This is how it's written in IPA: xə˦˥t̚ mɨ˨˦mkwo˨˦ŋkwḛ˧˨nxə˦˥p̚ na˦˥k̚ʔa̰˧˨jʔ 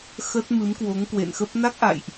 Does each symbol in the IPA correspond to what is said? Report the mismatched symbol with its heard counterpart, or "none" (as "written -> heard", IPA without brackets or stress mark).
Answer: none